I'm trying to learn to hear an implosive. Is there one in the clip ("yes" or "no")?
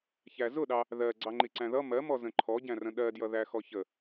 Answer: yes